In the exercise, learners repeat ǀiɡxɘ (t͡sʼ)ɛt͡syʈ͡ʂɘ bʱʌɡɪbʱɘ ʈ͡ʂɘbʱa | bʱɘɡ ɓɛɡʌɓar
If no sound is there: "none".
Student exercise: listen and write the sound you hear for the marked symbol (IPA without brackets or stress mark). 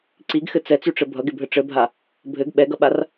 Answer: t͡s